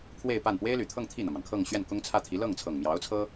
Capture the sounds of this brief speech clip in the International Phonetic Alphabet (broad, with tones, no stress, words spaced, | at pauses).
kʰwe˥˧ɪ̯pa˥˩n pwe˥ɪ̯ly˨˩t̪ʰɤ˥˧ŋ t̪ʰi˥˩n̪ä˩mɑ˩ŋkʰɤ˥˧ŋ ɕɥɛ˥˩nkʊ˥ŋt͡sʰä˥˩t̪ʰi˧˥ lɤ˥˩ŋt͡sʰɤ˨˩ŋmjɑ˧˥ʊ̯t͡sʰɤ˥